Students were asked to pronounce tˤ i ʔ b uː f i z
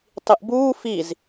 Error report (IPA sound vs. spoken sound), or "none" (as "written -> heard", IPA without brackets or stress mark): none